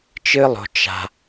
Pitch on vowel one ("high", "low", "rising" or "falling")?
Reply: high